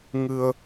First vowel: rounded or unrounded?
unrounded